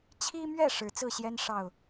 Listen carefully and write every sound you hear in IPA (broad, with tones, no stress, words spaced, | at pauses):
t͡ɕʰi˦mɥɛ˥˨ ʂɻ̩˨˦t͡sɹ̩˥˨ɕjɛ˦n ʂɑ˥˨ʊ̯